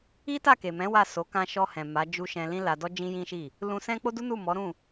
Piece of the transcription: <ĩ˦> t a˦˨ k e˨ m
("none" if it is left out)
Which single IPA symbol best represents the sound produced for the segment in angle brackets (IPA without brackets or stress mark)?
i˦